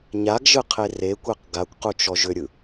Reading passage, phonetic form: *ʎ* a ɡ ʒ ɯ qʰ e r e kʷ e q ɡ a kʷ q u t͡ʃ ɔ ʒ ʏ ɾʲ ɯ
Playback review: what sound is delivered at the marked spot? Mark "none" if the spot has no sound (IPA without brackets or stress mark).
ɲ